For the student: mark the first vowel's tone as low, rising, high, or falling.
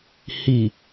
low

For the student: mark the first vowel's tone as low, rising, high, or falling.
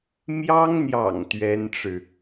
high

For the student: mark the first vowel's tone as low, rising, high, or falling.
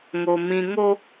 low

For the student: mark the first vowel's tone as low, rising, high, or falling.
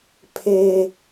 high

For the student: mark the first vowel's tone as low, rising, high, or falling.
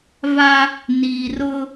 high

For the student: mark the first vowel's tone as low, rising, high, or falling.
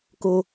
high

